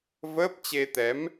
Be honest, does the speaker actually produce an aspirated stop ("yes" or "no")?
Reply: no